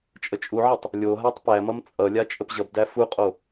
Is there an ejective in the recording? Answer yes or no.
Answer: yes